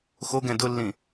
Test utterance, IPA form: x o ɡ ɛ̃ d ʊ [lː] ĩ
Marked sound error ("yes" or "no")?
no